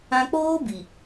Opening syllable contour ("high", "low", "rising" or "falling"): high